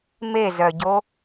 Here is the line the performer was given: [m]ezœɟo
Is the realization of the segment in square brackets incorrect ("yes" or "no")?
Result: no